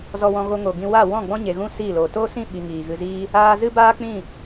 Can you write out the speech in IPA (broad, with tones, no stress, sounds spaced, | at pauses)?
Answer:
z ɔ˧ w ɔ̃˧ ɣ o˧ ŋ o˨ ɡ ĩ˧ w a˦˨ w ɔ̃˦˨ ɡ͡b ɔ̃˦ ɲ e˨ ɣ ũ˦ s iː˦˨ l oː˨ t oː˦ s ĩ˦˨ ɓ i˨ ŋ iː˨ ɣ ɨ˧ z iː˦ | aː˧ z ɨ˦ b aː˦ k͡p ĩ˦˨